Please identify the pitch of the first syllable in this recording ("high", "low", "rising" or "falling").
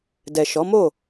low